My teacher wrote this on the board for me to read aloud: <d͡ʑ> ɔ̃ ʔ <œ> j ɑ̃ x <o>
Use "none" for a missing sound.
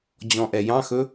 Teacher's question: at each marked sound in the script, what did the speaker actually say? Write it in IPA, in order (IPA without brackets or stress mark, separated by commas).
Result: d͡ʑ, ɛ, ɵ